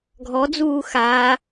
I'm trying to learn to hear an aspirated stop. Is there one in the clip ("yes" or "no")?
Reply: no